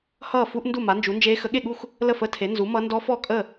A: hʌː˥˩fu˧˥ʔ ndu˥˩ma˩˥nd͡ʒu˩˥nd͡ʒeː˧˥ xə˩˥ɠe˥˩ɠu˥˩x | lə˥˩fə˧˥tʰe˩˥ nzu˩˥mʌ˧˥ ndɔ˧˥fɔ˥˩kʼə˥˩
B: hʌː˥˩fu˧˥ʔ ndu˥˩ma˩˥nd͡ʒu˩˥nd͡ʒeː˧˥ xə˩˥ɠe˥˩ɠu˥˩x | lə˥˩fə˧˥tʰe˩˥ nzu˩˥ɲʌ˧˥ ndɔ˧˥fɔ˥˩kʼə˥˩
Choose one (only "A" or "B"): A